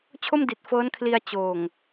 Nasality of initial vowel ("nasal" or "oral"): oral